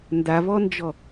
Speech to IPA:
n d a v ɔ n d͡ʒ ɔ

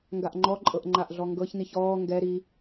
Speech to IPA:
ŋ ɡ a ʔ ŋ͡ǃ ɔ ǃʼ ɤ ʔ ŋ͡ǃ a ʔ ɮ ɔ ŋ ɡ ɤ ç n i ç ɔː ŋ ɡ ɛ ɾ i

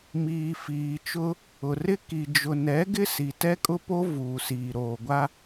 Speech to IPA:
m iː˨ f iː˨ t͡ʃ ʊ˦ | ʊ˨ r ɪ˦ k i˨ d͡ʒ ʊ˨ n ɛ˨˦ ɡ ɪ˦ s i˨ t ɛ˦ kʼ ʊ˦ p o˦ v uː˨ s iː˨ ɾ oː˨ ɡʷ a˦

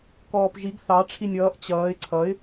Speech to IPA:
k ɔː p ʒ i ɡ θ ɑ ʈ͡ʂʰ i nʲ ʌː ʔ t͡ɕ ʌː ɪ̯ ǀʰ ʌ ɪ̯

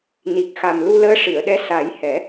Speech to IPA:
n i˨˩ k̚ x a˨˩ m l u˧ l əː˧˥ ʂ ɨ˨˩˨ ə̯ ɗ ɛ˧˥ s a˨˩˦ j h ɛ˨˩˦

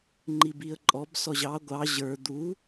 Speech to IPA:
ŋ͡ǃ i b i ə̯ ǃʼ ɔ b s ɔ ʑ ɑ ɡʷ ɑ ʑ ə˞ d̪ u

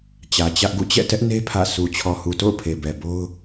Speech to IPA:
t͡ɕ ä˨ t͡ɕ ä˦ ʔ ɡ ṵ˦˨ t͡ɕ ɛ̰˦˨ t ɛ˦ ʔ n e˦ pʰ ä̰˦˨ sʰ u˨ t͡ɕʰ ɔ˨ h u˨ t o̰˦˨ ʊ̯ pʰ e˨ b ɛ˨ b o˦ ʊ̯

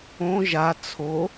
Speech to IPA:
õ ʒ a t͡sʰ o

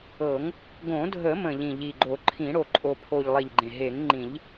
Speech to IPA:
ɤ˨˩˦ ŋ | ɡ õ˨˩˦ dʱ ə˨˩˦ m ə̃˨˩ ʎ ĩ˨˩ ʎ i˨˩ ɡ͡ǃ o˨˩˦ ǃʰ ĩ˨˩˦ ɽ o˨˩ ǃʼ o˨˩ pʰ o˨˩ ʎ lˠ i˨˩ ʎ ɡ͡ǃ ẽ˨˩ ɦ e˨˩˦ ŋ ŋ͡ǃ ĩ˨˩˦ ʎ

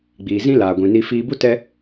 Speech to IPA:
ɡ͡b iː˨ z ĩ˦ l aː˨ ɡʷ ĩ˨ n i˧ f iː˧ b u˦ t ɛ˦

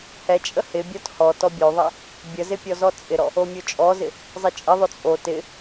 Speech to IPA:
h ɛ t͡ʃʼ ə h ɪ bʲ ɔ t h ɔ t ɔ bʲ o ðˤ ɛ | bʲ ə z ɪ pʲ ɔ z ɔ t͡sʼ ɪ ɾ ɔ | o mʲ o t͡ʃʼ ɔ z ɪ | zˤ ɪ t͡ʃʼ ɪ ðˤ o t͡sʼ o t ɪ

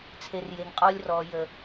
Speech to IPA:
t͡sʰ e r j e ŋ qʼ ɔ lʲ r ɔ j ə

